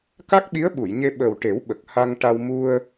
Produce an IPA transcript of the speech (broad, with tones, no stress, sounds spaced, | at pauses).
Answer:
k a˦˥ k̚ ɓ i˧˥ ə̯ ɓ u˨˩˨ j ɲ e˧ ɓ əː˨˩ w ʈ e˨˩˦ w ɓ ə˨˩ k̚ h a˧ ŋ ʈ a˧ w m u˧ ə̯